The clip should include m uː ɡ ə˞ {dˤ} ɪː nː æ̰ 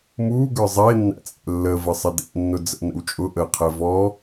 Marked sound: incorrect: zˤ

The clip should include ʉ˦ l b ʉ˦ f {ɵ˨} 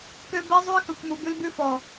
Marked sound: incorrect: ɔ˨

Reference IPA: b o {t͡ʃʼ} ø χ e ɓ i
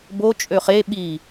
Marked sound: correct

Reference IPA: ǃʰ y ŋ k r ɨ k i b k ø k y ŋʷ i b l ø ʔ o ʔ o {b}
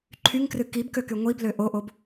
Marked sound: correct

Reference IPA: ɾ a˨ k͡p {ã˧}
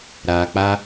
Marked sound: incorrect: a˧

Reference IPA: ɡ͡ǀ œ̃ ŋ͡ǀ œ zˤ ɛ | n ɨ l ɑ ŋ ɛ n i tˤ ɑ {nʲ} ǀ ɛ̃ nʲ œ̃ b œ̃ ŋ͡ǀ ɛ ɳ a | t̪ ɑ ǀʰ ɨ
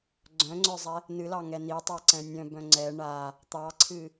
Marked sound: incorrect: none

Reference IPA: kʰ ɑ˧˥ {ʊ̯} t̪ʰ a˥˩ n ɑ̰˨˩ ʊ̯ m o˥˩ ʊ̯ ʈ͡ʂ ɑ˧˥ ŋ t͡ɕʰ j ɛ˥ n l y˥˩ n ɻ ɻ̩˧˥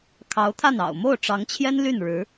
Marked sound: correct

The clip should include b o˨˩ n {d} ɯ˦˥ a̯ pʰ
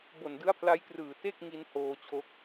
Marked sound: correct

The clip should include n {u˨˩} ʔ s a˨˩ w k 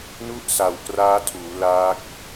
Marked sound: incorrect: u˥˩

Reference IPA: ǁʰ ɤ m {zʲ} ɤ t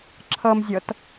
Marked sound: correct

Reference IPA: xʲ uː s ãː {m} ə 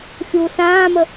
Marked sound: correct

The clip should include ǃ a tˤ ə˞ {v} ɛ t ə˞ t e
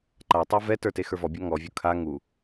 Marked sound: correct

